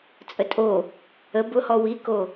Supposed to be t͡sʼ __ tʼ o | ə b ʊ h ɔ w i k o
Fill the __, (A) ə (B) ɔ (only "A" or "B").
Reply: A